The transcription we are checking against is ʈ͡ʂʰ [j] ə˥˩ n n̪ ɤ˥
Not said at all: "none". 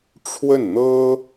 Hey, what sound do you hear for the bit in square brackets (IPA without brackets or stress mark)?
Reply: w